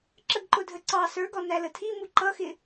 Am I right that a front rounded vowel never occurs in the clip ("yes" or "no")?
yes